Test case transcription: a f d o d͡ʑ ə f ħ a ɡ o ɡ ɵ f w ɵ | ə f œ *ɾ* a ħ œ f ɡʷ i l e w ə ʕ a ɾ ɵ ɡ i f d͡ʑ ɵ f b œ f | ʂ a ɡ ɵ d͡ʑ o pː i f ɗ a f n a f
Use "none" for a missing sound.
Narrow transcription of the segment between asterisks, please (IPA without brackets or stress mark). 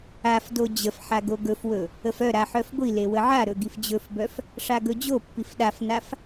ɾ